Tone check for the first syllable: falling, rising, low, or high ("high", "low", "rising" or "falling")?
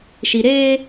low